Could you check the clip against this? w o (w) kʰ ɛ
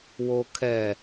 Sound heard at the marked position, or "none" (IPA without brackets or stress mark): none